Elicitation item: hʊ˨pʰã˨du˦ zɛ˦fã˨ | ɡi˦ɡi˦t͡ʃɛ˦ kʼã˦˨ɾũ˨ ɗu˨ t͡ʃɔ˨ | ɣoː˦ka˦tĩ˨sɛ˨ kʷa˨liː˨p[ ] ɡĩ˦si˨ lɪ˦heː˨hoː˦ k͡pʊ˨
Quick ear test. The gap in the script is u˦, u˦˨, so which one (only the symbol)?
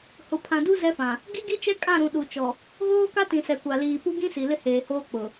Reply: u˦